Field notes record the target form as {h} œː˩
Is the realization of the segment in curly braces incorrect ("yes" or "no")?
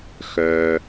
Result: yes